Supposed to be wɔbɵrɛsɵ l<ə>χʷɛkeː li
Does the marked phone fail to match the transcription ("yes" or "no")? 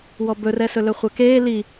yes